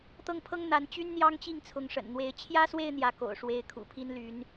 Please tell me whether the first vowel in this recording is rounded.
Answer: no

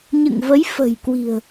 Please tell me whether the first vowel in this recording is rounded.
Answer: no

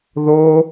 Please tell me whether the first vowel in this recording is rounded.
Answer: yes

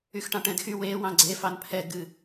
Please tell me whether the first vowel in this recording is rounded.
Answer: yes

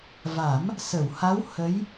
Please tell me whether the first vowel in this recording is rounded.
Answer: no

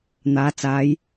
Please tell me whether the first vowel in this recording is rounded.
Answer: no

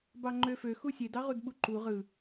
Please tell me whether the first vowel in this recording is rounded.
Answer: no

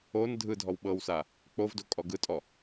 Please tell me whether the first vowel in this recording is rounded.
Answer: yes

